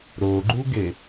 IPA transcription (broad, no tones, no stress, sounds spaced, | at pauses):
ɾ o ɡ͡ǃ u ɡ e